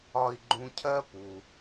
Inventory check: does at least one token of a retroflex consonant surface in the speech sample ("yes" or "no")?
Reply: no